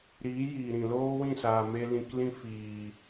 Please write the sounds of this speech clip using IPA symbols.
ɾ iː˨˦ j iː˨ ɾ ĩ˨ l oː˦ w ĩ˦˨ s aː˨ m e˧ l ĩ˧ k l ĩ˦ f iː˨

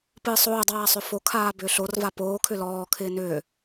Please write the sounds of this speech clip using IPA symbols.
p ɨː sˤ oː dˤ aː sˤ ʏ f o kʰ aː b ʏː ɬ o r v a p oː kʰ ʏ l ɔː kʰ ɪː n ʏː

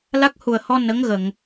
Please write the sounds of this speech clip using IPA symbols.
l a˦˥ k̚ h u˨˩ ə̯ h ɔ˧ n ə˧˥ ŋ ɣ ə˨˩˨ ŋ

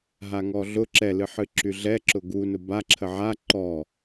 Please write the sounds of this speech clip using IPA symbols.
ɦ a ŋ ɔ ɮ ʊ ǁ ɛ l ɨ ħ ɨ ǁ y ɮ ɛ ǁ ʊ ɡ u n ʊ b a ǁʰ ə ʕ a ǃ ɔ

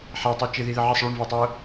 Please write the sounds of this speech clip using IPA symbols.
ħ a tˤ i t͡ʃ ɪ ð i ð ɪ ʕ ɪ sˤ ɭ o ɳ v ʊː tˤ ʊː

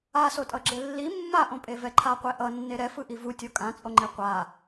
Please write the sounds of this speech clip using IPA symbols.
a s o tʼ ʌ ɡ͡ǁ e lː i mː a ʔ õ pʼ e v ɛ ǃʰ a qʷ e ʔ ʌ nː e ɾ ɛ f ɯ ʔ i v u tʲ o kʼ ã t͡sʼ o ŋ͡ǃ e qʷ a

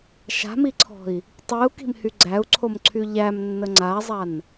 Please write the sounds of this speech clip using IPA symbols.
ʃ a̤ m i ǀʰ ɔ̤ i̯ | tˤ i u̯ k i̤ m h y ɡ͡ǀ æ u̯ ǀʰ o m ǀʰ y ʎ æ m nː ə ŋ͡ǀ a zˤ a n

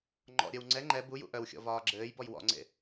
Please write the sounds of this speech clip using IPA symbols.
ŋ͡ǃ ɔ̰ ɾʲ œ w ŋ͡ǀ ɛ ŋ͡ǃ ɛ b u j ṵ ʔ œ w xʲ ɔ̰ v ɒː ɡ͡ǁ ɘː j b ɔ j w ɔ̰ ŋ͡ǀ ḛ

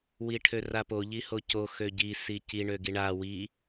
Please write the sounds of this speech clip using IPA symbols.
w i ʈʰ ø r a p o ʎ i h o c o x ø ɟ i s i c i ɳ ø ɡ i ɳ a w i

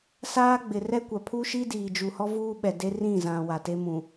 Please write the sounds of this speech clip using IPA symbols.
s aː˦ ɡ͡b ɪ˨ r ɛ˦ kʷ a˨ pʰ u˦ ʃ i˦ d iː˨ d͡ʒ u˨ h ɔ˦ v uː˦ ɓ ɛ˨ d e˦ r ĩ˦˨ z ã˨ w a˨ t e˦ m ũ˨

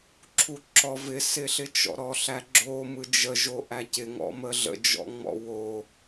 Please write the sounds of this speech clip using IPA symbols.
ǁʰ u ǁ ɔ v ɪ s ɪ ɬ ɪ t͡ʃ ɔ̰ ɾ ɔ ɬ æ ɡ͡ǁ o m ɯ d͡ʒ ə ʒ o ʔ æ c ɪ ŋ ɔ̰ m ə ɮ ə̰ d͡ʒ ɔ̰ ŋ͡m ɔ̰ w o

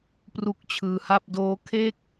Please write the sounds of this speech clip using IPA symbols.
p r u˦˥ k̚ t͡ɕʰ ɯː˧ h a˥˩ p̚ d oː˦˥ kʰ e˥˩ k̚

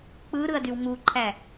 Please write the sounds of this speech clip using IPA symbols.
k͡p ɯ ɾ ɯ ɐ̯ d y w ŋ u ǃʰ æ

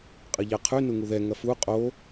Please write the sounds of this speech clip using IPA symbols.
qʼ ɐ ʎ a qʰ ʉ n u ŋ u ð ɛ ŋ ɐ f u qʼ o

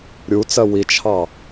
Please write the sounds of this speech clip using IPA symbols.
ɾʲ u t͡s ɜ w i t͡ʃʰ ɑ

